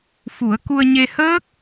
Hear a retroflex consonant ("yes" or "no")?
no